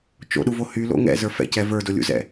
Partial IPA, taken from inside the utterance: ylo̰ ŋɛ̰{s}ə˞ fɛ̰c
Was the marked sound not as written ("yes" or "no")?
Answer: yes